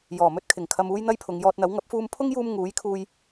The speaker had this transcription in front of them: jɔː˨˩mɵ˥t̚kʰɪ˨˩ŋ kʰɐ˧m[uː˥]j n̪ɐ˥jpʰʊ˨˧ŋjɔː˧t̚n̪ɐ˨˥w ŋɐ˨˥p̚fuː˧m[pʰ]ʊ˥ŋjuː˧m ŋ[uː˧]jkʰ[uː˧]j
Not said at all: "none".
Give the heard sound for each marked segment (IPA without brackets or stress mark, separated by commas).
uː˥, pʰ, uː˨˥, uː˧